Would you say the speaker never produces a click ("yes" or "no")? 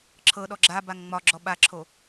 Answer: no